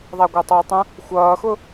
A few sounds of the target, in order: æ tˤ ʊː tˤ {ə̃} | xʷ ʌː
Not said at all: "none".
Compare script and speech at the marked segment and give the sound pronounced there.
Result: ə̃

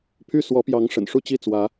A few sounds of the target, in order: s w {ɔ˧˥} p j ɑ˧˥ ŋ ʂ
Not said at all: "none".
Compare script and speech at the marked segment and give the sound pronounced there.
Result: ɔ˧˥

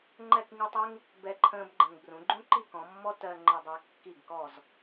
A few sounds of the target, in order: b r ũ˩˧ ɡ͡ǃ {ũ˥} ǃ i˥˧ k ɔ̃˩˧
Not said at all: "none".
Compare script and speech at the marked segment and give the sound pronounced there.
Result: ũ˥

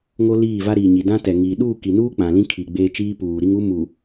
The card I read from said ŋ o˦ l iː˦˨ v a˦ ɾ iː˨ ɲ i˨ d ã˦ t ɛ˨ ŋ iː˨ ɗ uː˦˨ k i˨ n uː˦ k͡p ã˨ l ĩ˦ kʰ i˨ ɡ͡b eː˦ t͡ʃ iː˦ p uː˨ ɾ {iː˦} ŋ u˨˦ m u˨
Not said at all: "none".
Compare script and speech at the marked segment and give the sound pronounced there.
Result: i˦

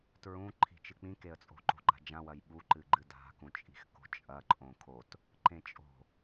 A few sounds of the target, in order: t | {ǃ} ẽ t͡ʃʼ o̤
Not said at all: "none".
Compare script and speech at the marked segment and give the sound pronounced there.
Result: ǃ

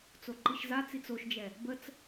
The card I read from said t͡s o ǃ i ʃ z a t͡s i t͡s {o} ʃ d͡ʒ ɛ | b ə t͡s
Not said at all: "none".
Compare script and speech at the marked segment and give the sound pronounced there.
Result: o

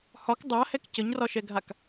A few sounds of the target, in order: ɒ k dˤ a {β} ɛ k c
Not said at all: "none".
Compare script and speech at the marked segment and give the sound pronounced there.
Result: h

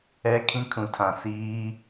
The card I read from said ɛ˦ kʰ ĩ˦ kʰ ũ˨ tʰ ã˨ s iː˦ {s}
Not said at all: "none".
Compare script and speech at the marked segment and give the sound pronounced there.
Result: none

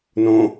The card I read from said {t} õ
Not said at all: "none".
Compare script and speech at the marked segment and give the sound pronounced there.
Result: n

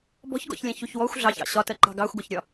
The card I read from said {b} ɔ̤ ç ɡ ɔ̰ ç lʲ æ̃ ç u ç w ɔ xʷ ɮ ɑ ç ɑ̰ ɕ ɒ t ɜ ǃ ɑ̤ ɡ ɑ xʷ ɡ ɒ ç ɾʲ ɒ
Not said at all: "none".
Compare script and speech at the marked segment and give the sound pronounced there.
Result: b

